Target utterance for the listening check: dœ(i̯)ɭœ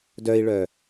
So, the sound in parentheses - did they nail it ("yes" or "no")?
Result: yes